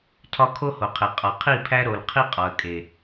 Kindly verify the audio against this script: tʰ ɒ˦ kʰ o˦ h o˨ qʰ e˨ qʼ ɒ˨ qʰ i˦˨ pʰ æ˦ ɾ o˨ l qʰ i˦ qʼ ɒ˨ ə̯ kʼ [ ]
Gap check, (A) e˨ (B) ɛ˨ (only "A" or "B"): A